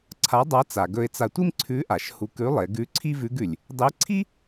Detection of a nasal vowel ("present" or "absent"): absent